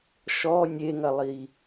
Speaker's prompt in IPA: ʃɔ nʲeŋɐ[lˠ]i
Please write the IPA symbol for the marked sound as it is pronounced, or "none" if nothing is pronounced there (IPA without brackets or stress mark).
lˠ